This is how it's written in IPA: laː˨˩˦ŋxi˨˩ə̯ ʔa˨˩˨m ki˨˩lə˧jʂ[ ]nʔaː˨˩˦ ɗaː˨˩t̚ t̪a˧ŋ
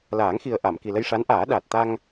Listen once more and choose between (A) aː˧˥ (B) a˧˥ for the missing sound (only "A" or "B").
B